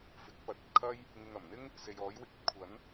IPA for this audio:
f ɪ˨˥ k̚ p ɐ˨˥ t̚ ɐ˧ t̚ kʰ ɐ˥ j | ŋ ɪ˨ ŋ ɐ˨˩ m n̪ ɪ˥ ŋ | s e˨ j ɔː˨˥ j w ɪ˧ k̚ ɐ˧ t̚ kʷʰ ɐ˨˥ n

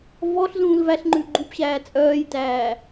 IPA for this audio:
v ɔ ɬ z ũː l v æ ɬ ŋ͡ǃ ʉ ɡ͡ǃ u p ɕ æː t͡sʼ œː j t æː

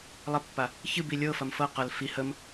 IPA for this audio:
lˠ ə pː a | ç ɨ b i lʲ ɤ f ɐ m f ɤ q ɐ l f i h ə m

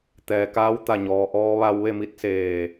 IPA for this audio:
t̪ ɛː˩ k aː˧˥ w t̪ a˧˩ ɲ ɔː˩ ʔ ɔː˧ ʋ a˧ w ʋ e˥˨ m i˧˥ t̚ s eː˧˩

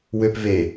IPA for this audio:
w ø p v e

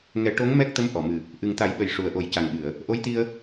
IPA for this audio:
ŋ ɛ˨˩˦ ʈ o˧˥ ŋ m ɛ˦˥ k̚ t̪ ə˧˥ m ʔ ɔ˨˩˨ m ɨ˨˩ | ʔ ɨ˨˩ ŋ t̪ a˨˩˦ j ɓ ə˨˩ j ʂ u˨˩ ə̯ ʔ o˨˩˦ j c a˨˩ ŋ ɓ ɨ˨˩˨ ə̯ | ʔ o˧˥ j t̪ i˧ ə̯

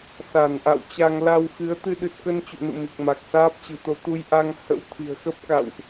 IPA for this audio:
s a˧˩ n ʔ a̰˧˨ w t͡ɕ a˧ ŋ l a˧ w x ɨ˨˦ ə̯ t̪ ɨ˧ ɗ ɨ˨˩ t̚ k ə˧ n t͡ɕ ṵ˧˨ n ṵ˧˨ m i˨˩ k̚ m a˨˩ k̚ s aː˦˥ p̚ t͡ɕ ɨ̤˨˩ t̪ o˧ t̪ u˧ j ʔ a˧ ŋ h ə̰˧˥ w t̪ʰ i̤˨˩ ə̯ x ə˦˥ p̚ k a̰˧˨ w ʔ

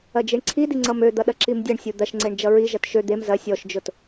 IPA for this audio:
ɐ d͡ʒ i ɳ ǀʰ i d i ŋ͡ǀ ʌ m ø d̪ ʌ ɗ ɐ ǁ i m dʲ ʌ ɳ sʲ u d̪ ɐ ʃ ŋ͡ǀ e ɳ d͡ʒ ʌ ɹ i ʒ ɐ t ʃ ø d̪ e m z ɐ sʲ ɔ ʃ d͡ʒ ʊ t

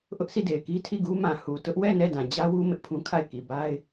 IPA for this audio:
ʔ ʊ˦ ʔ sʰ i˦˨ d e˨ ɪ̯ k i˦ tʰ i˦˨ ɡ u˦ m ã˨ h u˨ t ʊ˦ ʔ w ɛ˦˨ n ɛ˦˨ d ã˨ d͡ʑ ä˦ w u˦ m ɪ˦ ʔ pʰ ũ˦ kʰ a˦˨ ɪ̯ k i˨ b a˦ ɪ̯

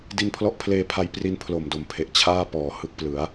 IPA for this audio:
d i˧ n pʰ l ɔ˦˥ ʔ pʰ l eː˧ pʰ a˧ j p r i˦˥ n pʰ l o˨˩ m d o˨˩ m pʰ e˨˩ ʔ t͡ɕʰ aː˥˩ p ɔː˩˦ h ɯ˦˥ k̚ p l ɯ˩˦ a̯

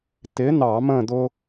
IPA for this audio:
t̪ ɪ˨˥ n̪ ɑ˧˩˧ m ə̃˥˨ d̪ ʊ˦

